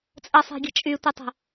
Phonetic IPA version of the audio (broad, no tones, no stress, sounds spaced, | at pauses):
t͡sʼ ə sˤ e̤ ɡʲ ə̤ t͡ʃʼ y tʷ i tˤ ə̤